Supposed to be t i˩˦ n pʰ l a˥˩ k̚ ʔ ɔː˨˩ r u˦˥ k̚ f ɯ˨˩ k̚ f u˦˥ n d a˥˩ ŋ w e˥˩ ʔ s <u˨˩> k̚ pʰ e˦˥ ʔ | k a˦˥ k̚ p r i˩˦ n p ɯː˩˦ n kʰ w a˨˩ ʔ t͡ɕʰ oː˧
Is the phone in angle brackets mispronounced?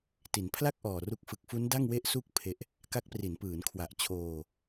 yes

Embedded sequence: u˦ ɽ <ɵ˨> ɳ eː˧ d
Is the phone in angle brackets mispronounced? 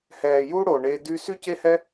yes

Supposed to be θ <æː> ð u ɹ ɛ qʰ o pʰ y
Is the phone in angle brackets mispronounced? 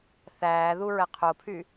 no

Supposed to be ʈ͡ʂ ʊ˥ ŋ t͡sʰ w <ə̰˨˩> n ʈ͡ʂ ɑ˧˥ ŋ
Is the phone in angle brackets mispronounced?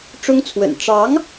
no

